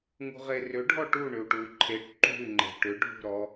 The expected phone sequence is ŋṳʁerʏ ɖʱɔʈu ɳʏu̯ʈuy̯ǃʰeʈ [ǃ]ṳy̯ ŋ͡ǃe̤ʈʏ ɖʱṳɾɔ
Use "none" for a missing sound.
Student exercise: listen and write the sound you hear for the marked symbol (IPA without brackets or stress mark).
ǃ